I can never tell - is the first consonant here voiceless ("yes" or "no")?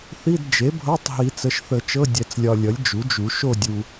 yes